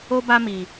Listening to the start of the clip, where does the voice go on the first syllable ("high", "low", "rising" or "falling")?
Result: high